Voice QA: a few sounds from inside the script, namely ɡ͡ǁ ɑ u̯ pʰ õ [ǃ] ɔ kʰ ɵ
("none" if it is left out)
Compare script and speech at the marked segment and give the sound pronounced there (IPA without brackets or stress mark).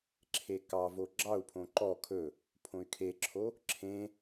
ǃ